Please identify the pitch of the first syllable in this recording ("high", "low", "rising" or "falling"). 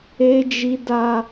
high